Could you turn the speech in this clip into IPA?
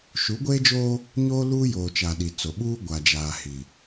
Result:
ʃu˨˦ɡʷeː˦d͡ʒoː˦ | ɲoː˦luː˦joː˨t͡ʃa˨ ɗi˨t͡so˨ ɓuː˦ ɡʷa˨d͡ʒaː˨ hi˨

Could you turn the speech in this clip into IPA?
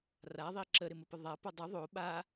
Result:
raðˤi ǁəɾɪməpə ðˤapo dˤɪ ðˤo ɓa

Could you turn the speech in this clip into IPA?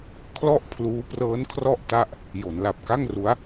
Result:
kʰlɔ˥˩ʔpʰluː˦˥ prɤː˦˥n kʰrɔ˥˩ʔta˥˩ʔ | jo˩˦nla˨˩p̚ka˥˩ŋru˦˥a̯

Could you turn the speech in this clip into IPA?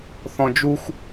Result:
θɔ̃d͡ʒuxʷ

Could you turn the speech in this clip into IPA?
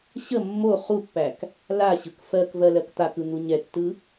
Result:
ɕə mːo χupːæk | laɕɯk fɜkvɜ lɜkt̪akɯ n̪uɲɛtːɯ

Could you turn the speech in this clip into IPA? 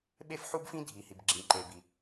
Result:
ɓe˥fħu˥bfĩ˥ dʱi˩ hi˩bɡ͡ǁĩ˩ǃe˩ bi˩

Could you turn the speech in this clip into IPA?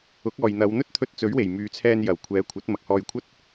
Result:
ʊ˨˥k̚ɔː˨jn̪ɐ˨˧w n̪ɵ˥t̚t̪ʰɵ˧t̚ t͡sɵ˨˥ɥwe˨˩j myː˨˧t͡sʰɛː˧njɐ˨˩w kʷʰɛː˨˧ kʷʰɐ˨˥t̚mɐ˨k̚hɔː˧jkʷʰɐ˥t̚

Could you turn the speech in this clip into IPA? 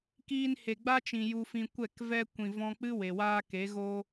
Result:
kiː˧nhe˨ɡ͡ba˦t͡ʃĩ˨ ju˧fĩ˧ kʷɛ˦˨kvɛ˦ kʷĩ˨vɔ̃˧k͡pɨ˦ we˨waː˦ ke˨˦ ɣo˦

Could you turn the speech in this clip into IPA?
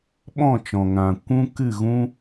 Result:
ɓɔ̃˦˨t͡ʃɔ̃˨ŋã˨ kʷũ˦ kɨ˦˨ɣũ˦

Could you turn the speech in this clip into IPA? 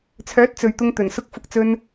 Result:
t͡sʰœː˨˥t̚ t͡sɵ˨ɥt̪ʊ˧ŋt̪ɵ˨˩n sʊ˧k̚fʊ˨k̚t͡sɵ˧n

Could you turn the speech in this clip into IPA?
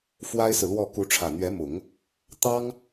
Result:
fwa˥ɪ̯sɹ̩˨lwɔ˥˩ ku˧˥ʈ͡ʂʰä˨˩n̪ɥɛ˧˥mʊ˨˩˦ŋ | t̪ɑ˥ŋ

